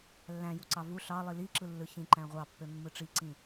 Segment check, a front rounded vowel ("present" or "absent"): present